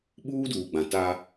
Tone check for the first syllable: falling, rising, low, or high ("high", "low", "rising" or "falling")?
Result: high